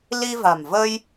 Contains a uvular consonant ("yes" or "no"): no